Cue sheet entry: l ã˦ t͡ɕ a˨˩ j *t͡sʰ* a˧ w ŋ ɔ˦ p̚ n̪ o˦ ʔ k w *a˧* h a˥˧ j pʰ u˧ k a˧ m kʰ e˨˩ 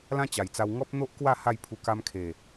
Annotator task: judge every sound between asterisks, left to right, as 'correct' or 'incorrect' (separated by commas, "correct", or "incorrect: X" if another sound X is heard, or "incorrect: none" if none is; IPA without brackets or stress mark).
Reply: incorrect: t͡s, incorrect: a˥˧